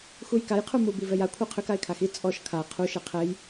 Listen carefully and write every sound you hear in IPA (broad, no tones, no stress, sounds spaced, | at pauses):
x u j k a j qʰ u m u b i v ɛ j a kʷʰ a qʰ ʏ k a ɪ̯ kʰ a x i t͡sʼ ɔ ʃ kʰ a qʰ u ʃ ɛ qʰ ɛ j